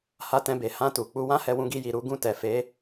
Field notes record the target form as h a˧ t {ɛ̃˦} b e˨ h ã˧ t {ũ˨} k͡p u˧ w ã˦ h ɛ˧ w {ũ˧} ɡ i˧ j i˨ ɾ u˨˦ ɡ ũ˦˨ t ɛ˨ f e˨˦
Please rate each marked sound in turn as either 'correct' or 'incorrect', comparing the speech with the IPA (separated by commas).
incorrect, incorrect, correct